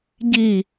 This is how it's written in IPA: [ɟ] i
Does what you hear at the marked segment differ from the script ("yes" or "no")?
no